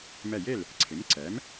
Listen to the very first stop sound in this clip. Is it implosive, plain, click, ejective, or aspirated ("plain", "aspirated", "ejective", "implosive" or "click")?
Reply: click